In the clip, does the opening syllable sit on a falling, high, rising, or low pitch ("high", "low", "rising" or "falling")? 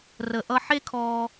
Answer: low